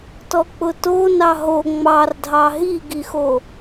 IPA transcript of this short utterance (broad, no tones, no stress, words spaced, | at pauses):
tɔk͡pʊto nɑɦo ŋ͡mɑrdʱɑ ɦiɡixo